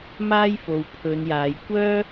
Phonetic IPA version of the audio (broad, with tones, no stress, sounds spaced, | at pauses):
m aː˥ j f o˨ w pʰ ɵ˨˧ n j aː˨˧ j kʷ œː˥